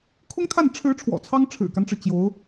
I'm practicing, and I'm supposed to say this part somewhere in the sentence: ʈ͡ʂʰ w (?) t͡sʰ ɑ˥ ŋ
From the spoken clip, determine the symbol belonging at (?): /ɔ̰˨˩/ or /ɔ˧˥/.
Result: ɔ̰˨˩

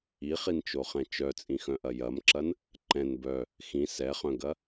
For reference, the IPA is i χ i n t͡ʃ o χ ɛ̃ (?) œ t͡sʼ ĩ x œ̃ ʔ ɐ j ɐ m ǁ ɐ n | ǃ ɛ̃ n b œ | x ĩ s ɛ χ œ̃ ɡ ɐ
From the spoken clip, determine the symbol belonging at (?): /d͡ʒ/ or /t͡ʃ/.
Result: t͡ʃ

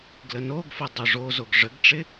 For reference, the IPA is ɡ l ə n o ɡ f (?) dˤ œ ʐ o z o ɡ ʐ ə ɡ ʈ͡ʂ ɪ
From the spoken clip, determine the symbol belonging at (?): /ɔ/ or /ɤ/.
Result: ɤ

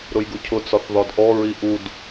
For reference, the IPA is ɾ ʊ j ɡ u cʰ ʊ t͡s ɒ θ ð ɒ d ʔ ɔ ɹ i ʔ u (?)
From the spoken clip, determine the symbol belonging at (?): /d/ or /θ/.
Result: d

